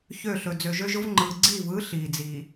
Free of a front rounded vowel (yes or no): no